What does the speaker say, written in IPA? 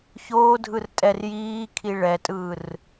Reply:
ç oː dʱ ɯ r tʼ ɛ r j iː kʰ i ɭ ɛ tʼ ɯː r

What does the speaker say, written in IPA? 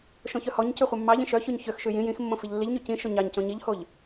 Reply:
ʃ õ ç œ h ɔ ɲ c ʉ χʷ ɑ mː ɑ ʎ ĩ ʃ œ ç ʉ ɲ ç ø x ʃ ʉ j ĩ j ĩ x mː õ f i ʎ lː i ʎ ɲ ʉ c ĩ ʃ o ɲ ɑ ɲ c õ ɲ i ʎ h o ʎ

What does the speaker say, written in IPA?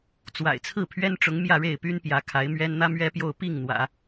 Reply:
t͡s w a̰˨˩ ɪ̯ t͡sʰ ɹ̩˥˩ pʰ ɥ ɛ˥ n ʈ͡ʂ ʊ˧˥ ŋ m j ä˥˧ ɻ e˥˩ ɪ̯ p y˥ n p j ä˧˥ kʰ a˧˥ ɪ̯ m ɥ ɛ˥ n n̪ ä˥ m ɥ ɛ˥ p j o˥˧ ʊ̯ p i˥˩ ŋ n̪ w ä̰˨˩˦

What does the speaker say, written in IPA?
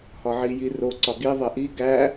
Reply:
h ɒ ʕ i j i r o ǀ ɒ ɡ i ðˤ e ʔ i ɡ æ

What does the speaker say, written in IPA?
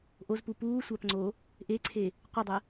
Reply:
ʔ o z p u p uː sʷ a p ŋ͡ǀ o | ʔ e ǀʰ e | qʷ ə dˤ ə

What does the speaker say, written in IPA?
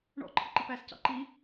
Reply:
ɳ ɔ̰ ǃʰ ə ǃ i p æ s c ɑ̰ ǃ i

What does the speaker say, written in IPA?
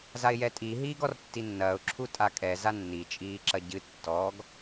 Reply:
z a ɪ̯ j ɛ tʼ i ɦ iː ɡ ɔ r tː i nː ɐː ʊ̯ ǁʰ u tʼ a kʼ ɛ z a nː i t͡ʃʼ iː ǁ ɐ ɟ ɨ tː ɔ ɡ

